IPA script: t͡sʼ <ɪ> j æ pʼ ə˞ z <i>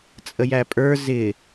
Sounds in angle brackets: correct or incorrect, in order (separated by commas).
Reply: incorrect, incorrect